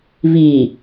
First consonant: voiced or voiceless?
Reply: voiced